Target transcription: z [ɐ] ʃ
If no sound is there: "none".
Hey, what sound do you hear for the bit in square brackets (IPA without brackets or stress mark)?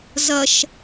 ɐ